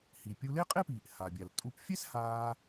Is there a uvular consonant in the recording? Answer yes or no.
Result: yes